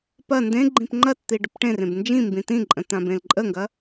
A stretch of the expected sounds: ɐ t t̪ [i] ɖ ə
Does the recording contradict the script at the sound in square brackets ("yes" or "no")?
no